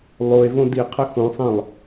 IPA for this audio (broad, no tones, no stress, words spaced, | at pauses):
lˠoe̯ võdiqʰə xõsˤɛ̃lˠ